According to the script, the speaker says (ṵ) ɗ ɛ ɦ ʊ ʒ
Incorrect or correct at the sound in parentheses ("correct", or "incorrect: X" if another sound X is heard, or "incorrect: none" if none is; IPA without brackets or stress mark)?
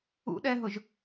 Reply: correct